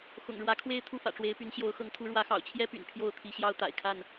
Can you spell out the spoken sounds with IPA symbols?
x ʊ̰˨˩ ŋ ɻ w ä˨˦ kʰ w e˦ ɪ̯ t̪ʰ u˦ f ä̰˨˩ ʈ͡ʂ w e˨˦ ɪ̯ p y˨˦ n ɕ j o˨˦ ʊ̯ x ɤ˨˦ ŋ t̪ʰ u˨˦ ɻ w ä˨˦ x ɑ̰˨˩ ʊ̯ t͡ɕʰ j ɛ˦ p y̰˨˩ n pʰ j o˥˨ ʊ̯ t̪ʰ i˨˦ ɕ j ɑ˦ ʊ̯ t̪ a̰˨˩ ɪ̯ kʰ a˥˨ n

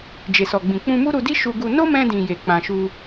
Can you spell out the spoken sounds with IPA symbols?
d͡ʒ e˨ s ɔ˨ ɡ͡b ĩ˨ k͡p ũ˧ m u˦ ɾ u˧ d i˦ ʃ u˧ ɡ u˧ n o˦ m ɛ̃˧ d ĩ˨ j e˨ k͡p ã˨ ʃ u˧

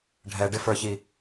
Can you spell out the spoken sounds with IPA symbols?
ɖʱ ɛ ɖ ɪ f ə˞ ç i

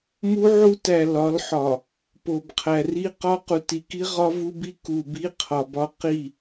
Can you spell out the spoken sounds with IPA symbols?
m u˦ ʕ u˦ t æ˨ l ɒ˨˦ l ħ ɒ˨ | p o˨ b qʰ æ˨ r i˦ q ɒ˦ q u˨ t i˨ k i˦ ʁ ɒ˦ v u˦ b i˦ k u˨ b i˦ qʰ ɒ˨ b ɒ˦ q i˦˨

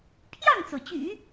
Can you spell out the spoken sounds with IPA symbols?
pʰ j ɑ˥˩ ŋ t͡s o˩ ʊ̯ t͡ɕ y̰˨˩˦

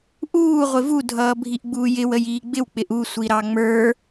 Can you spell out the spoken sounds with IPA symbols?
ʔ uː ʁʷ ɪ v u dʱ ʌː bʱ i ʔ ɡ͡b uː j ɪ w ə j iː ɡ͡b ɪ w k͡p ɪ ʔ u sʷ i ɾ ɑ ŋ͡m ə˞

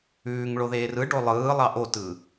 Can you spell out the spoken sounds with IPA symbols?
ʉː ŋ ɭ o ð eː r ɯ ɖ o lˠ ɯː lˠ ɑ ʔ o t ɯː

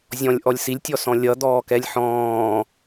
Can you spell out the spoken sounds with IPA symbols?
zʲ ɔ̃ lʲ ʔ ɔ lʲ s i lʲ tʲ ɔ s ɔ̃ lʲ ʌ d̪ ɔː k ɛ lʲ ħ ɔ̃ː

